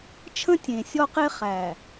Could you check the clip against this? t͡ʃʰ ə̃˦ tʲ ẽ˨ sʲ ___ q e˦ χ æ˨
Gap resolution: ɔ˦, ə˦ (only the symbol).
ɔ˦